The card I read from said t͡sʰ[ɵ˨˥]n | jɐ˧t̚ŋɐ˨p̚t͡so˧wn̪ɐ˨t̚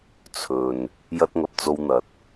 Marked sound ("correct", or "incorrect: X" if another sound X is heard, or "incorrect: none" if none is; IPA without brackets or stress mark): incorrect: ɵ˨